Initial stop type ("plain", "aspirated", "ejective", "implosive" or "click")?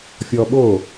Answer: implosive